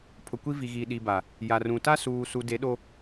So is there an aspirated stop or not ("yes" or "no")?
yes